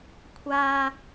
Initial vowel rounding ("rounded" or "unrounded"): unrounded